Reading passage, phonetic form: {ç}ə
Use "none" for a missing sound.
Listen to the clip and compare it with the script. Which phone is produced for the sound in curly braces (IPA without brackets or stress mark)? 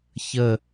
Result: ç